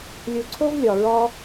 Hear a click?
yes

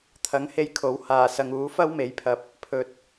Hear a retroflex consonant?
no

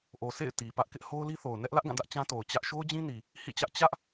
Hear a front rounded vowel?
no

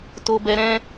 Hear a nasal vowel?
yes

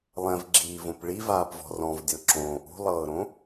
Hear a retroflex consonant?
yes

